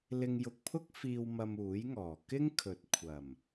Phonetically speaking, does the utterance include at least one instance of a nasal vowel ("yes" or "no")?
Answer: no